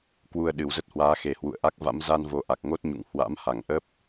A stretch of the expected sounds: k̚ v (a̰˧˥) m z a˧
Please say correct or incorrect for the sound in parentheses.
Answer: correct